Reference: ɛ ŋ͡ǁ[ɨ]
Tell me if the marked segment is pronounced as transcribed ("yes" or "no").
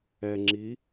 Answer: no